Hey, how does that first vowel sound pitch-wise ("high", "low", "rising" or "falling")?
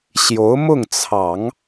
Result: rising